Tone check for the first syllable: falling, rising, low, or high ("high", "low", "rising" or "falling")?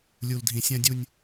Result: low